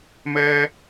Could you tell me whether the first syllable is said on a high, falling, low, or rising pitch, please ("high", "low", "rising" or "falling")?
high